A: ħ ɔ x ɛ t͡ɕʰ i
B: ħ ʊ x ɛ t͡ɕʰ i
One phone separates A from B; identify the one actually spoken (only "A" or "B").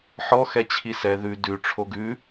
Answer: A